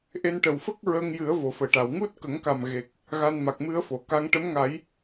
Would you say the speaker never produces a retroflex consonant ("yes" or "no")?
no